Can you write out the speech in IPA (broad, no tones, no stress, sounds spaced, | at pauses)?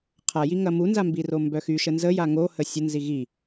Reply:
qʰ a j i ŋ ɐ m u n z a m b i r o m b œ x y ʃ ə n z ə j a ŋ o h ə sʲ ə n z i ɣ i